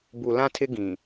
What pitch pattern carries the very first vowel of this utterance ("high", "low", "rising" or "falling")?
low